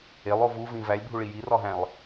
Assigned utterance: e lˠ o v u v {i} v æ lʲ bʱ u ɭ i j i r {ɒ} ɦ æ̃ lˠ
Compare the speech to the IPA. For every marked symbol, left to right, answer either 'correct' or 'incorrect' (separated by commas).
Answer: incorrect, correct